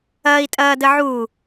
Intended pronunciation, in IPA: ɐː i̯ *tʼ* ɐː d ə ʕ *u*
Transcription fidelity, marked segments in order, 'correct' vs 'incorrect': correct, correct

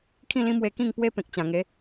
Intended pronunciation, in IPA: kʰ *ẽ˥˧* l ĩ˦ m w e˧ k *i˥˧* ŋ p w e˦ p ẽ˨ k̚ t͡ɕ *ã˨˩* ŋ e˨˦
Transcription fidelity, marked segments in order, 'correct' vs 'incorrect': incorrect: ĩ˥˧, incorrect: ĩ˥˧, correct

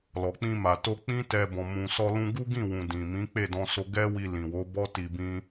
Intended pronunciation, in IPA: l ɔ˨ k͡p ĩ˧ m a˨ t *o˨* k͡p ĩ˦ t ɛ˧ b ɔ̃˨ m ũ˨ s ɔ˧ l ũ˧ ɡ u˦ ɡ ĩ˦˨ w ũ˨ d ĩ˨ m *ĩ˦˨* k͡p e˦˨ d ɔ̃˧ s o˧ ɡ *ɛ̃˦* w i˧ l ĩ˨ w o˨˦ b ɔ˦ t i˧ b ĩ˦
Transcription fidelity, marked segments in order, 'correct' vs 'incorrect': incorrect: o˧, incorrect: ĩ˨˦, incorrect: ɛ˦

